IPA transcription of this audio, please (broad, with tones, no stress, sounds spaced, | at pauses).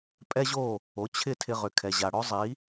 pʼ ɛ˥ ʑ o˥˩ | o˩˥ t͡ɕʰ ɪ˥˩ tʰ ɪ˧ ʁ ʏ˩ kʰ ɛ˩ ʑ a˩ ɽ ɔ˥ zˤ i˩˥